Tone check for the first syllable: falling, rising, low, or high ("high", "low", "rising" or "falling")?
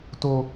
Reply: low